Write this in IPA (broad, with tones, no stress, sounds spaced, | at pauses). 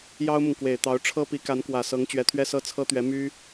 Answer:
j ɑ˥ ʊ̯ m ʊ˨ ŋ k w e˨˩ ɪ̯ t̪ ɑ˧˥ ʊ̯ ʈ͡ʂʰ ɤ˥ p i˧˥ k a˧˥ n k w ä˨˩ s ɤ˧˥ ŋ t͡ɕ ɥ ɛ˧˥ t̪ʰ ɥ ɛ˥ s ɤ˥ t͡sʰ ɤ˥ t̪ ɥ ɛ˧˥ m y˥